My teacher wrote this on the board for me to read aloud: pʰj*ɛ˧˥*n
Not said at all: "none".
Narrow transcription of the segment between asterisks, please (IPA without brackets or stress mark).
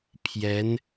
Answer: ɛ˧˥